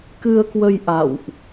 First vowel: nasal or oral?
oral